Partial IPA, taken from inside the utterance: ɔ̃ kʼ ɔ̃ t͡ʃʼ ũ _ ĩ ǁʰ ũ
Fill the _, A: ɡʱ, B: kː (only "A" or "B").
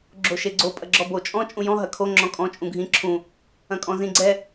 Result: A